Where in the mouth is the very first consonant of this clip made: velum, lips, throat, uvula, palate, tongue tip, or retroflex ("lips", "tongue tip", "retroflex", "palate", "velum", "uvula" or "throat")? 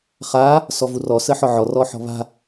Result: uvula